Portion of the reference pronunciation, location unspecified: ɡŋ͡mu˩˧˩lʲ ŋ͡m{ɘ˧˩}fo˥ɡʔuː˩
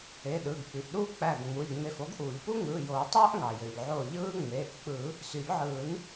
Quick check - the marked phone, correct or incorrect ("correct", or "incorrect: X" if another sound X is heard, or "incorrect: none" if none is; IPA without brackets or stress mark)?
incorrect: e˧˩